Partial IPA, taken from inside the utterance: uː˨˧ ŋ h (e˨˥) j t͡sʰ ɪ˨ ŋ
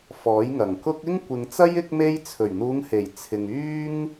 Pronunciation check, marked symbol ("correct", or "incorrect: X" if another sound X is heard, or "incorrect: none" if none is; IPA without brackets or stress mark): incorrect: e˨˩